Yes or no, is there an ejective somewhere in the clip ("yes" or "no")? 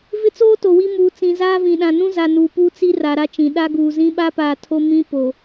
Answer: no